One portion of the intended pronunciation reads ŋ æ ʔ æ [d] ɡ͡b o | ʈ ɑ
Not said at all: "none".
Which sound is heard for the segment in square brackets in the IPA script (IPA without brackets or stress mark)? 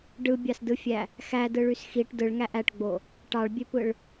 ʈ